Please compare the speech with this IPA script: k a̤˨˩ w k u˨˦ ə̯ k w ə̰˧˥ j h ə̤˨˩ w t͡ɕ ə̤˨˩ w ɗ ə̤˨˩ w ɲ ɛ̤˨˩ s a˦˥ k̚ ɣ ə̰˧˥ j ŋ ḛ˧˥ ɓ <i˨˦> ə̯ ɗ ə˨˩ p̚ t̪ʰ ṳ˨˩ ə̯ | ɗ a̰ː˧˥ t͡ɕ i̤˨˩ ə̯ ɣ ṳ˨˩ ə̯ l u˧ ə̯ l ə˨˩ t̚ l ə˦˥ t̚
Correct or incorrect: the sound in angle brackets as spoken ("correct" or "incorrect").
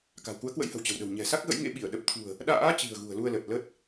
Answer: incorrect